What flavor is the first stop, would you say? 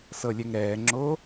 click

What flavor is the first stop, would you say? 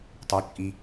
plain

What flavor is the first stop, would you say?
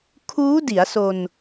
aspirated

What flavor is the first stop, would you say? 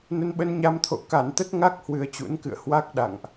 implosive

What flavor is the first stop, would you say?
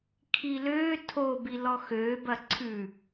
aspirated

